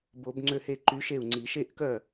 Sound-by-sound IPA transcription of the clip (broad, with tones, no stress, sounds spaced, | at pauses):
b o˨˩˦ b ŋ͡ǀ ø˥˩ h e˥˧ ǃ y˧˥ ʃ e˥˩ u̯ ŋ͡ǀ i˨˩˦ ʃ e˥˧ ʔ k œ˥˩